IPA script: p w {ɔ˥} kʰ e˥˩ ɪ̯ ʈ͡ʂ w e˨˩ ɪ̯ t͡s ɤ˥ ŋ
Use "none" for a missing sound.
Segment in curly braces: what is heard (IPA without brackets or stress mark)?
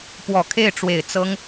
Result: ɔ˨˩